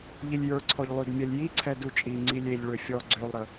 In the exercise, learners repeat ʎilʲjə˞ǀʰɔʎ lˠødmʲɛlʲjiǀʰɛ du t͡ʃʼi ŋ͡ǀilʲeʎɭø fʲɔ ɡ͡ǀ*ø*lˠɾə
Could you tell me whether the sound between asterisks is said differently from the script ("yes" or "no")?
no